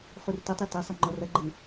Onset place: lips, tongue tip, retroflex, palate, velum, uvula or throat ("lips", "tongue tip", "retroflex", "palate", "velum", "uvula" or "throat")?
uvula